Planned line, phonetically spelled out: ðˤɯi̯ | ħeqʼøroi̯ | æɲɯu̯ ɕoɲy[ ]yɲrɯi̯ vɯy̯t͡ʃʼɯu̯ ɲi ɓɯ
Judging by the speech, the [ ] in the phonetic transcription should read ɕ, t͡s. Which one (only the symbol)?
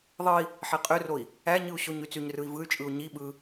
t͡s